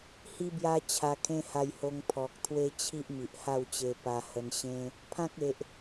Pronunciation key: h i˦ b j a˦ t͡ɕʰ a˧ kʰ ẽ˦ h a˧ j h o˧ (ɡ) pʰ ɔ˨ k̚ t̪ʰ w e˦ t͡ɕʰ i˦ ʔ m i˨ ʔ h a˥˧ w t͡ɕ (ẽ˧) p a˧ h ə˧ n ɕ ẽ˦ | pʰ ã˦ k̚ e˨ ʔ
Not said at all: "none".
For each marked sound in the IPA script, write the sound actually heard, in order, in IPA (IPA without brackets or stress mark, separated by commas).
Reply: ŋ, e˧